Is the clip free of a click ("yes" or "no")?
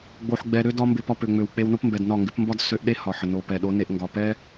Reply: yes